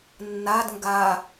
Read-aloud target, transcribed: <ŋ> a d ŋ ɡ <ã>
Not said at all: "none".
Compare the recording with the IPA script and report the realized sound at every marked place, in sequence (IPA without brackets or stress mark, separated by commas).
nː, a